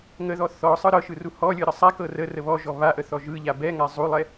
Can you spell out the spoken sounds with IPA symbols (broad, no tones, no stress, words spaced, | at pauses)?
ŋəðɔ θɔ sˤɯɾɤʃɯ ruhɔlʲɯ ɾəsˤakɤ rərə βɔʒɔ βaʔə θɔʒɯʎa bɛŋa zˤulˠɛ